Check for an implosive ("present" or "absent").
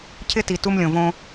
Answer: absent